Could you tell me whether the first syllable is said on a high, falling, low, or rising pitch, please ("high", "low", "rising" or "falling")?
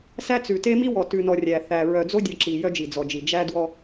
high